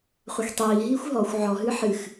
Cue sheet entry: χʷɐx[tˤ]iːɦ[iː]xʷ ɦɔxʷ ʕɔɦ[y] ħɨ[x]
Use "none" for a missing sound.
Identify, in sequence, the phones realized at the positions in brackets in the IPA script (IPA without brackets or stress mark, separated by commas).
tˤ, iː, ɨ, x